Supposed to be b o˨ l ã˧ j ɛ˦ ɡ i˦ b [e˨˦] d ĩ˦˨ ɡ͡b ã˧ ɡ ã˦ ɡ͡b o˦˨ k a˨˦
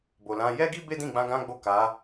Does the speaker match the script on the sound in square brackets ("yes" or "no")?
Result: no